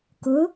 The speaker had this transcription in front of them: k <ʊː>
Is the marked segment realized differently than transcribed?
no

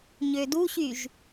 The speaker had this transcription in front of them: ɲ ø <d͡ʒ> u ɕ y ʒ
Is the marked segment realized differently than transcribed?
yes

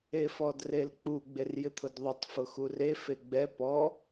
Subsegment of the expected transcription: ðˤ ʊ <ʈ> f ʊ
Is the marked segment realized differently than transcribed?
yes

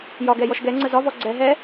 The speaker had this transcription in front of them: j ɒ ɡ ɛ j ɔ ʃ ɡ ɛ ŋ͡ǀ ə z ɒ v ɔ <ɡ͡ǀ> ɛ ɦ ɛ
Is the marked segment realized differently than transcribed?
no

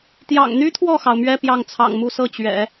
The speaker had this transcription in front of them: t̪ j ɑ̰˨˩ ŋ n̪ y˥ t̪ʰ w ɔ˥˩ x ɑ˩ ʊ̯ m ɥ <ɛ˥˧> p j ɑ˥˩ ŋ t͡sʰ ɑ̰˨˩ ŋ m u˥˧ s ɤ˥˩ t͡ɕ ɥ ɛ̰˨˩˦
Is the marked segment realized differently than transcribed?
no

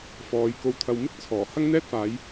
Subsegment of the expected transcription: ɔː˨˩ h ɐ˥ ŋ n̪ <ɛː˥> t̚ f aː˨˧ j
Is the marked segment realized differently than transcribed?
no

